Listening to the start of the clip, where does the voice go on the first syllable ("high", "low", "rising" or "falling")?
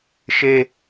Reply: high